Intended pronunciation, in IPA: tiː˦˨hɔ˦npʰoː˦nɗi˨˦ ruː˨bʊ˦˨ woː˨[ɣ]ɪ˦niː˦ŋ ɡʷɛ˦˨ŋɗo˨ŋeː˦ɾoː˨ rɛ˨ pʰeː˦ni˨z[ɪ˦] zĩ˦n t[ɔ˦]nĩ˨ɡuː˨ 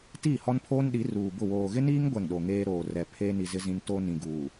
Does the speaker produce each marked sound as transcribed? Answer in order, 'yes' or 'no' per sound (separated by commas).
yes, yes, no